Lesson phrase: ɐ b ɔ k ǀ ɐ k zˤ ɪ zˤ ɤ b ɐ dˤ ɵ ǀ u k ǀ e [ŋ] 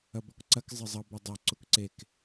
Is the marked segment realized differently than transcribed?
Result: yes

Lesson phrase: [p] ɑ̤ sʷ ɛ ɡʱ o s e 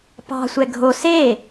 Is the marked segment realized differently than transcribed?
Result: no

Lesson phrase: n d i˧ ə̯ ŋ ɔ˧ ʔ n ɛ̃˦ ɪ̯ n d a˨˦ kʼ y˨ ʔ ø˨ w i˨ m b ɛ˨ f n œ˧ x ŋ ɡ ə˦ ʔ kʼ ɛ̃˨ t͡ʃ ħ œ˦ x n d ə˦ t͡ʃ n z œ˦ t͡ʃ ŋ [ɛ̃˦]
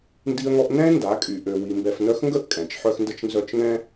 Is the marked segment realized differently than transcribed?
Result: no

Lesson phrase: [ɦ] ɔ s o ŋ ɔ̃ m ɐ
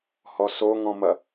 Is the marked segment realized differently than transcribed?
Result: yes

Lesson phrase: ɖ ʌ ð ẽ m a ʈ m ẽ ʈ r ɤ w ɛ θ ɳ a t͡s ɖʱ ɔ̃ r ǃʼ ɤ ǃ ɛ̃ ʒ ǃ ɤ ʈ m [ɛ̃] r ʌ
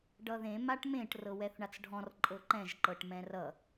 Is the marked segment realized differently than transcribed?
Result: no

